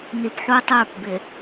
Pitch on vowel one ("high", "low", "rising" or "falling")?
low